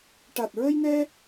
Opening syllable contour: low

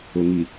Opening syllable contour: low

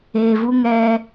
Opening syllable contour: low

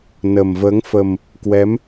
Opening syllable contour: low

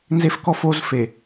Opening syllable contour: high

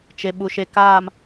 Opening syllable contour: low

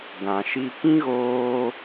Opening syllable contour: low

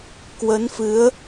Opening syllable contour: rising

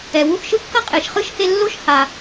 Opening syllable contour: low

